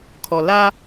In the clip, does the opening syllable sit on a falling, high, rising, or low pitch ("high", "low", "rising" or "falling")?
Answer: low